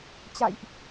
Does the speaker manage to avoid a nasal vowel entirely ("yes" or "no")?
yes